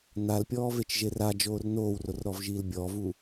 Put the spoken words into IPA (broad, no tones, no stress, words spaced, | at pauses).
nalpʲɔːvet͡ʃʒe rad͡ʒoːr noːwrorɾɔvʒiːl bʲɔvu